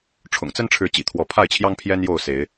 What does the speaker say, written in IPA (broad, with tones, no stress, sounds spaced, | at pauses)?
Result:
ʈ͡ʂʰ ʊ̰˨˩ ŋ t͡s ə˦ n ʈ͡ʂʰ ɻ̩˨˦ t͡ɕ ḭ˨˩ t̪ʰ w ɔ˨˦ pʰ a˥˨ ɪ̯ t͡ɕʰ j ɑ˦ ŋ pʰ j ɛ˦ n j o˥˨ ʊ̯ s e˨˦ ɪ̯